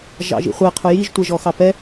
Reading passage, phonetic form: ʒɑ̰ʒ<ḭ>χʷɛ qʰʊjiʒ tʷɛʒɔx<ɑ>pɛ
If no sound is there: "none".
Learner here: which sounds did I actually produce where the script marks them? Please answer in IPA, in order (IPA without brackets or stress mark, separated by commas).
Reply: ḭ, ɑ